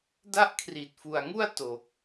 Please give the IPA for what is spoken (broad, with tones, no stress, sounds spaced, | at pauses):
d a˥˩ ʔ kʰ r i˨˩ t̚ f u˨˩ a̯ ŋ u˥˩ a̯ t o˨˩ k̚